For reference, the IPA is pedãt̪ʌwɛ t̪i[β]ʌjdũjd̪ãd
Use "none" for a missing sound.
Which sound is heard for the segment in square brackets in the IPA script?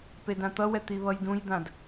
β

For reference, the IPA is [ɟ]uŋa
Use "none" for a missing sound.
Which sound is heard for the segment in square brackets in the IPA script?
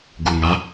ɡ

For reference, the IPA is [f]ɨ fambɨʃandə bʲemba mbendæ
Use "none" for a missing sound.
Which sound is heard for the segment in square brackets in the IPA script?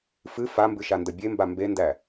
f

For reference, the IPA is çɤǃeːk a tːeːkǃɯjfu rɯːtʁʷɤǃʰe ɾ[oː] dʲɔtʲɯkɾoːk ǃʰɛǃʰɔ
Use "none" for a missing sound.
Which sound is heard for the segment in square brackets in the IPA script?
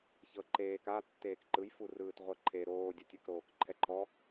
oː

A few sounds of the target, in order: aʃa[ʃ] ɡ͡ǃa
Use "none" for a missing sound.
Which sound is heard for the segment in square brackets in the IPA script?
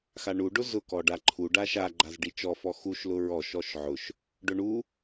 none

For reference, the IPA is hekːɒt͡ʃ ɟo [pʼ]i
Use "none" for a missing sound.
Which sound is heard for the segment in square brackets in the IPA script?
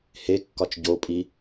pʼ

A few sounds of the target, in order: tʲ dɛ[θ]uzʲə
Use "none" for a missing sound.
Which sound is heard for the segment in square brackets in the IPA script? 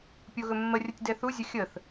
θ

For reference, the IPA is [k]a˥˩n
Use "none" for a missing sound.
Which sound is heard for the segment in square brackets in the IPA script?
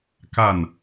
k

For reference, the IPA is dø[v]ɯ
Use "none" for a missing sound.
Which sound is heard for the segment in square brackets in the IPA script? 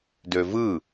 v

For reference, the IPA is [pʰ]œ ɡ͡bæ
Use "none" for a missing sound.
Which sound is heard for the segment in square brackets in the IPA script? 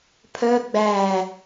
pʰ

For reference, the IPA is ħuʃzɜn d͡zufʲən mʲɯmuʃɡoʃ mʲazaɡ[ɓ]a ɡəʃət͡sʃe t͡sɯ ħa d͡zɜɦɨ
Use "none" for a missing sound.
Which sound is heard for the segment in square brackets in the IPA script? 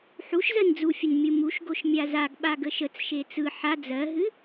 ɓ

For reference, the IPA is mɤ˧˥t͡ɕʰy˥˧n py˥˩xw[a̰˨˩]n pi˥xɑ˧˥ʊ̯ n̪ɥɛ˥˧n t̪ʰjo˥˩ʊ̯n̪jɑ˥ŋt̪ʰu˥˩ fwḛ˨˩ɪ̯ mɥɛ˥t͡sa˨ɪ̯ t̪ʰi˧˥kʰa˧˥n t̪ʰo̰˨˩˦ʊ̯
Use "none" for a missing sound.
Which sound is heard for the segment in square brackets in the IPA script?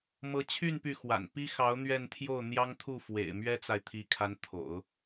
a̰˨˩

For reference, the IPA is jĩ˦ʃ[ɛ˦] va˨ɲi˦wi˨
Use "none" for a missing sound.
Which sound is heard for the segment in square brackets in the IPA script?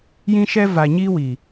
ɛ˦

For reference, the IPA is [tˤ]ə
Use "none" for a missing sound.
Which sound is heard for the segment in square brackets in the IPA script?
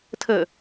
tʰ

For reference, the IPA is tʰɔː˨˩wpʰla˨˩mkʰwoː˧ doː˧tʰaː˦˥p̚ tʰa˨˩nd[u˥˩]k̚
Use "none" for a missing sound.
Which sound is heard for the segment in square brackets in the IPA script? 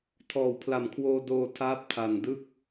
ɯ˥˩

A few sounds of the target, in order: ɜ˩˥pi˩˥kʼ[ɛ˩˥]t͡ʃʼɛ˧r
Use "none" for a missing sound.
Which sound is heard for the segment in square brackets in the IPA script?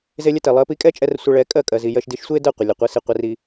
ɛ˥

